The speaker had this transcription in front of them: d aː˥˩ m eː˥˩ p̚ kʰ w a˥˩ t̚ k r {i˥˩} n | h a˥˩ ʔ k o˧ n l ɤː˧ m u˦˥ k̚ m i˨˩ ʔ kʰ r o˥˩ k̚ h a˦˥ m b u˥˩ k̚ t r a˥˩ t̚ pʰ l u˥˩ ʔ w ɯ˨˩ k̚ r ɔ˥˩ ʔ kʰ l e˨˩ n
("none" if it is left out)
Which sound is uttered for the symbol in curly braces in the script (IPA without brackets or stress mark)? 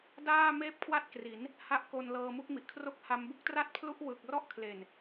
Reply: i˩˦